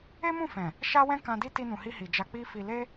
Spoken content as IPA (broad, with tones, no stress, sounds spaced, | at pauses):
e˦ m ũ˦˨ f ɛ̃˨ | ʃ a˦ w ɛ̃˦ k ã˧ d i˦ t i˧ n ũ˨ h i˧ h i˨ d͡ʒ a˧ k͡p i˦ f i˧ l e˦